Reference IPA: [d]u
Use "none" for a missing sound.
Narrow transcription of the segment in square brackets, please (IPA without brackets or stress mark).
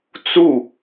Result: t͡s